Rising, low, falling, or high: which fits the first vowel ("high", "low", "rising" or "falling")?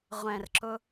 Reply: low